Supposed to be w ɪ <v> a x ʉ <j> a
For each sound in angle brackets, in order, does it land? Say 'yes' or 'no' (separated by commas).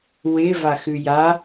yes, yes